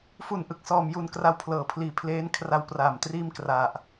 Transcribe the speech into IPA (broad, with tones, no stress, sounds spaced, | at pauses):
f u˨˩ n ʔ ɯ˨˩ k̚ s ɔː˨˩ m j u˨˩ n k r a˧ w pʰ l ɤː˩˦ pʰ l iː˨˩ pʰ l eː˦˥ n kʰ r a˧ w p r aː˨˩ m t r iː˥˩ m k r a˨˩ ʔ